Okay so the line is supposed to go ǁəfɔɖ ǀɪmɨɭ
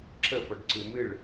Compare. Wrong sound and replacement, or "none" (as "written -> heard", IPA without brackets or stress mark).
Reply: ɪ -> ɨ